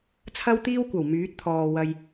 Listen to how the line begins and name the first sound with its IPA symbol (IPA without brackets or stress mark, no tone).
t͡sʰ